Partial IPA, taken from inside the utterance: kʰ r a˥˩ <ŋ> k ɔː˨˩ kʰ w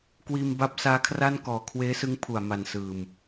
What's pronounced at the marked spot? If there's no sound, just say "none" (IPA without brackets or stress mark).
n